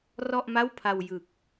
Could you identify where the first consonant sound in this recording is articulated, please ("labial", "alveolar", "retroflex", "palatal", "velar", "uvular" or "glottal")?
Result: alveolar